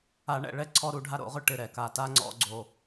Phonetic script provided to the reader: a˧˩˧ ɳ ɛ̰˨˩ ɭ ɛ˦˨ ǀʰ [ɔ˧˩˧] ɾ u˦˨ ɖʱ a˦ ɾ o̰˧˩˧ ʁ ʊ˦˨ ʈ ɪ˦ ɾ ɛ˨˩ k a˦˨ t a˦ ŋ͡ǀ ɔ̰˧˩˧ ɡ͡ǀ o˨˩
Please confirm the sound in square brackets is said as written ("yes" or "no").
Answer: no